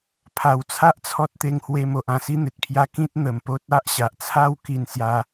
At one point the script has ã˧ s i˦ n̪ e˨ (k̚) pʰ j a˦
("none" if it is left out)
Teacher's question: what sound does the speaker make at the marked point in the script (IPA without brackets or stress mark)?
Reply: t̚